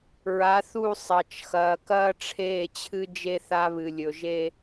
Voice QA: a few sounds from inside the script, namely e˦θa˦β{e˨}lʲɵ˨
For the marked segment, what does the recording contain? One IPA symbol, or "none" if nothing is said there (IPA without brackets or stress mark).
ɨ˨